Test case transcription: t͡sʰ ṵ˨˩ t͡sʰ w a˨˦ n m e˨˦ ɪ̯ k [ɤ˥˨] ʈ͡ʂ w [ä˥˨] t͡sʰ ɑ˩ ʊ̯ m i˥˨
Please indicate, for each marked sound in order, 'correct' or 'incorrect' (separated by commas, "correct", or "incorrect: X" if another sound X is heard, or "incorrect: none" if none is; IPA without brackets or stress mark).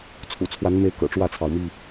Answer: incorrect: ɤ̰˨˩, correct